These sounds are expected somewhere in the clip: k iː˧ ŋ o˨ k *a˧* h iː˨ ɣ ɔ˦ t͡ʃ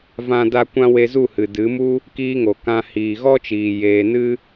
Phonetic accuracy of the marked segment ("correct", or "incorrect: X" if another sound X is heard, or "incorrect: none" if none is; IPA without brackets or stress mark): incorrect: ã˧